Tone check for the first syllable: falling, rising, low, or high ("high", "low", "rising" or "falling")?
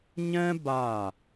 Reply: high